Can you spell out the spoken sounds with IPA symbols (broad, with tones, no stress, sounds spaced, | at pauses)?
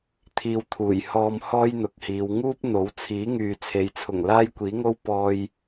t̪ʰ iː˧ w t̪ʰ uː˨˩ j h ɔː˧ m h ɔː˥ j n̪ ʊ˨ k̚ h iː˨˧ w ŋ uː˥ p̚ n̪ o˨˥ w t͡sʰ iː˨˥ ŋ yː˨ t͡sʰ e˨˧ j t͡sʰ ʊ˨˩ ŋ l aː˥ j kʷ iː˨˥ ŋ o˥ w p ɔː˧ j